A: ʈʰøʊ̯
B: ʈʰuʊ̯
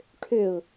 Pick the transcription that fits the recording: A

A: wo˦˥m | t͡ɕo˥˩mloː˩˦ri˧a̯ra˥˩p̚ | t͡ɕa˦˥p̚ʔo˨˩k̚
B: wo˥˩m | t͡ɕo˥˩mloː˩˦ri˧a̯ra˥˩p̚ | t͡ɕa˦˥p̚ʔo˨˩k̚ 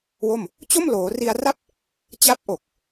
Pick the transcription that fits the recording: B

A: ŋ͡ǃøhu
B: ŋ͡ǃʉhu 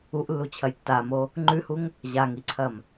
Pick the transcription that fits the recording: B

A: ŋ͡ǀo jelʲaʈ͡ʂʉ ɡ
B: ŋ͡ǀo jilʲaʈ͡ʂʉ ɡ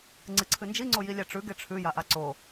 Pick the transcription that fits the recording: B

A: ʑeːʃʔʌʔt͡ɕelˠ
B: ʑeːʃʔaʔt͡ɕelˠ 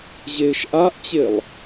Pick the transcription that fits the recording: B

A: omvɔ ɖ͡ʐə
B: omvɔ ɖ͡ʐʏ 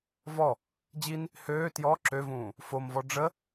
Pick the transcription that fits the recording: A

